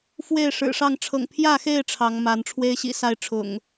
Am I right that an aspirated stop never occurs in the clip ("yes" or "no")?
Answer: no